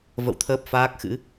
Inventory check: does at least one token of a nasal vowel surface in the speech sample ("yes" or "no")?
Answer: no